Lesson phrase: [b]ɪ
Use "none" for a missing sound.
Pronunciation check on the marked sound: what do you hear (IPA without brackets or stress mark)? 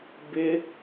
b